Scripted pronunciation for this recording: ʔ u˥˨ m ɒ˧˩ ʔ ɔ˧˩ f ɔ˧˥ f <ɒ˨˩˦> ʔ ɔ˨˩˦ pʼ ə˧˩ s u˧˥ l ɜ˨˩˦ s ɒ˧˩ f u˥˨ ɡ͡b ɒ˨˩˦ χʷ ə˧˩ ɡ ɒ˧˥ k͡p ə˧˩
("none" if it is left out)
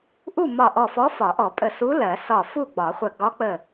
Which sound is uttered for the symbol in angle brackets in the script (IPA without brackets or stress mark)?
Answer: ɒ˨˩˦